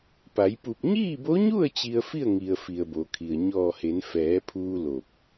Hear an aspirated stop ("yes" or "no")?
yes